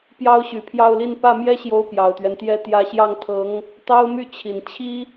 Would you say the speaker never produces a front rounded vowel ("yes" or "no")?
no